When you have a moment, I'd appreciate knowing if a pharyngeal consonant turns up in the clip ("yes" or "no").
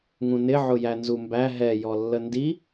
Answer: yes